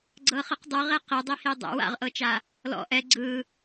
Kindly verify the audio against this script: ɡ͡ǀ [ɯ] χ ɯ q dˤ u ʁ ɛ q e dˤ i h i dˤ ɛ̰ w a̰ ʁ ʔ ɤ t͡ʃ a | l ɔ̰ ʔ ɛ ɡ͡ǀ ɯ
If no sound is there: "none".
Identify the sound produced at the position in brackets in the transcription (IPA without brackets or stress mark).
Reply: ɤ